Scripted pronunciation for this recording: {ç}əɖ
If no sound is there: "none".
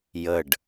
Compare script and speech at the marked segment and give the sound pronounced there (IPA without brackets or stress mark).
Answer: j